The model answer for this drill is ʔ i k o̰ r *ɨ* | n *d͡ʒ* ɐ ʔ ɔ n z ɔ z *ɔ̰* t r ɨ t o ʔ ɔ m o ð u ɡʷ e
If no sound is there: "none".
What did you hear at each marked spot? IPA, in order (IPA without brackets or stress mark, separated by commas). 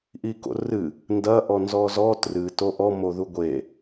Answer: ɨ, d, ɔ